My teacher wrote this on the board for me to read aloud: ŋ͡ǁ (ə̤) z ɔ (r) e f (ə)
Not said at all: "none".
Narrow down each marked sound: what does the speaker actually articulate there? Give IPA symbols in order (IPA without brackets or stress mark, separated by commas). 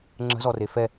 ə̤, r, ɛ